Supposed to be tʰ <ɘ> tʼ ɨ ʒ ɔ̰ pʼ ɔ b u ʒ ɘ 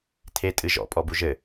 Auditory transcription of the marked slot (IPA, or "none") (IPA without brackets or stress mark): e